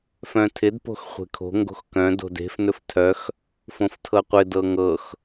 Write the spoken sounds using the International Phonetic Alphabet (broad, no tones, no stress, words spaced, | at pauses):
fœ̃tʰɪd po̤xχʷe̤kʰo̤ ŋɡo̤xkœ̃ do̤de̤f nɵftʰœx | fõftʰɤqʷɪ dɤŋɤx